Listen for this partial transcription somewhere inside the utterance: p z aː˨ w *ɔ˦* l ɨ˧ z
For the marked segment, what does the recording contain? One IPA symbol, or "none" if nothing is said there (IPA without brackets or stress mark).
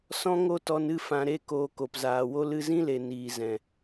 o˦